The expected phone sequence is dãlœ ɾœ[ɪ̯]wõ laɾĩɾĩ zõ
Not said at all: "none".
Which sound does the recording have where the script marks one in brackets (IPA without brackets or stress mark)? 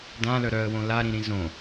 ə̯